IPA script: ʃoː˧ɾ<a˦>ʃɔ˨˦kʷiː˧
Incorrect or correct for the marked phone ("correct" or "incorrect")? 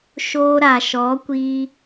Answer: incorrect